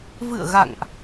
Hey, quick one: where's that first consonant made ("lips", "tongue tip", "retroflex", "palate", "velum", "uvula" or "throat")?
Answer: lips